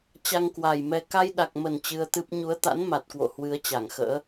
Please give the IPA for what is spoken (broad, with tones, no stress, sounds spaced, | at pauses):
t͡ɕ a˧ ŋ k w a˨˩ j m ɛ˧ k a˧ j ɗ a˨˩ k̚ m ə˨˩ n t͡ɕ ɨ˧ ə̯ t̪ ɨ˦˥ p̚ ɲ u˨˦ ə̯ t̪ a̰˧˥ n m a˨˩ t̚ k w o̰˧˨ h w ɨ˨˦ ə̯ t͡ɕ a˧˩ ŋ x ə̰ː˧˥